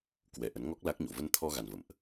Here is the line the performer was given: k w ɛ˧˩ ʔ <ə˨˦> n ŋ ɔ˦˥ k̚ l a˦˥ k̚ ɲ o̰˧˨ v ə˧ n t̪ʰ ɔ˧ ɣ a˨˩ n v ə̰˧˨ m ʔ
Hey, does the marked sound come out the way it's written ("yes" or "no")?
yes